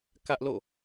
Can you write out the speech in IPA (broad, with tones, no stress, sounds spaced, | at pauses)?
k ä˦ ʔ l o̰˦˨